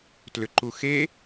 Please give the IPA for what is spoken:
t l ʏ ǃ u x e

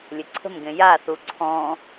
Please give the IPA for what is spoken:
lʲ ɘ ǀʰ ə̤ m ɡ ẽ j a θ u ǀʰ ɔ̃

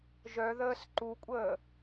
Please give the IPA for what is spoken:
ʒ œ ð əː s ǃ u kʷʼ əː

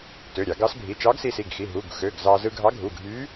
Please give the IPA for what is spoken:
t ø˩˧˩ ɾʲ ɑ˧˩˧ ɡ ɑ˧˥ s bʱ i˩˧˩ t͡ʃ ɑ˧˥ ɡ s i˧ s i˩˧˩ ɡ x i˩˧˩ ɦ u˩˧˩ ɡ x ø˩˧˩ ɡ z ɑ˧ z ɯ˧ ɡʱ ɑ˧˥ ɡʱ u˩˧˩ ɡʱ y˧˥

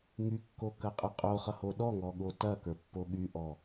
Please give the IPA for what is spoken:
ŋ y kː o k ɐ qʼ ə qʼ o χ ʌ h o ɗ ɔ ŋ ɔ ɠ o t ɐ k ə˞ pː o ɠ y ʔ ɔ

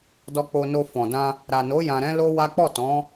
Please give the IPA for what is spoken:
d ɔ˧ k͡p o˧ n o˧ f ɔ̃˨ d ã˧ | ɾ a˨ n o˨˦ j ã˧ ɾ ɛ̃˦ l o˦ w a˦ k͡p ɔ˦˨ t ɔ̃˨˦

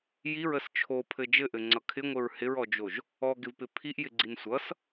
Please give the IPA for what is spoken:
j i ɹ ə s t͡ʃʰ o pʰ ɘ d͡ʒ ɘ ʔ ɘ ŋ͡ǀ ʌ kʰ ɪ ŋʷ ɘ ɹ h ɪ ɹ ɔ d͡ʒ o ʒ | ɔ ɡ ɪ v p ɪ pʰ i ʔ j ɪ ɡ͡ǀ i n sʷ ʌ s

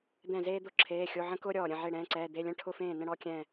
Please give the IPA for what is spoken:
d̪ ɛ̃˥˩ z eː˥ d̪ ʊ˥˩ ǁʰ eː˧˥˧ xʲ o˧˥˧ ʕ ə̃˥ k ʊː˥ ɾʲ ɔː˧˩ ɾʲ ə̃˥˩ ʕ e˥˩ ɽ ɛ̃ː˧˥˧ ǀ ɛː˧˥˧ d̪ e˧˥˧ lʲ ə̃˥˧ ʈʰ ʊ˥˩ f ẽː˥˩ n ə̃˥ ɽ ɔ˥˧ kʲ ɛ̃˥˧

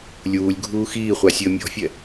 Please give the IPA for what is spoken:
lʲ uː lʲ ɡʱ uː x iː χʷ a sʲ əː mʲ ɔ̤ fʲ ɛ

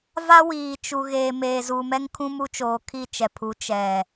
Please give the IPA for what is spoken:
v a˦ w iː˨ t͡ʃ u˨ ɣ eː˨ m eː˨ z u˨ m ɛ˦ ŋ kʰ ũ˦ m u˦ t͡ʃ oː˨ kʰ i˦˨ t͡ʃ ɛ˨ pʰ u˨˦ t͡ʃ ɛ˨

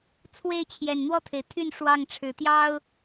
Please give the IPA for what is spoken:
t͡sʰ w e˥˨ ɪ̯ t͡ɕʰ j ɛ˨˩ n n̪ w ɔ˥˨ t̪ʰ e˩ ɪ̯ t̪ʰ y˥˨ n ʂ w ɑ˥˨ ŋ ʈ͡ʂʰ ɻ̩˨˦ t̪ j ɑ˦ ʊ̯

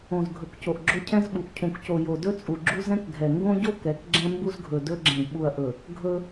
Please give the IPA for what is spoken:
õ˨ z ɡʱ ɵ˨ k c o˨ ʔ ɡ͡ǁ o˦ cʰ ɛ̃˦ z ɓ u˨ ʔ cʰ ũ˨ k c o˨ j o˨ d ɵ˦ t͡sʼ u˨ ɡ͡ǁ u˦ z ɛ̃˦ k ɡʱ ɛ˨ ŋ ɡ õ˦ ɟ o˦ k ɛ˨˦ k ɡ͡ǁ ɛ̃˦ m b u˦ z ɡʱ ɵ˨ d ɵ˦ ɡ͡ǁ ɛ̃˨ ɡ ɓ u˨ ɐ̯ ʔ ɵ˨ | ɡʱ ɵ˦

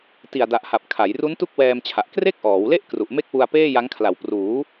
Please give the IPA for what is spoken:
t i˨˩ a̯ d a˨˩ ʔ h a˨˩ p̚ kʰ a˩˦ j r u˦˥ n t u˥˩ k̚ w ɛː˧ m t͡ɕʰ a˨˩ ʔ k r e˥˩ k̚ ʔ ɔː˩˦ w l e˥˩ ʔ k r u˨˩ ʔ m e˥˩ k̚ w u˧ a̯ p eː˥˩ j a˦˥ ŋ kʰ l a˨˩ w p r uː˩˦

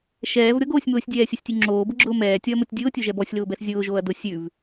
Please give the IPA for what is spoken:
ʃ ɛː v ɾʲ ɔ ɡ oː sʲ m ʊː sʲ dʲ ɛː sʲ o sʲ tʲ ʉ ŋ͡ǁ oː b ʊ ɡ͡ǁ ʊː m ɛː tʲ ɔ ɐ̯ m o tʲ dʲ ʊː tʲ o ʒ ɛ b ɔ sʲ l ʊː b ɛ s zʲ ʊː ʒ oː ɐ̯ d ʊ sʲ ʉ v

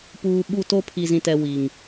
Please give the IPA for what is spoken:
p uː˨ ɓ u˦˨ t o˦ pʰ i˨ z ĩ˨ t ɛ˨ w i˨ ŋ

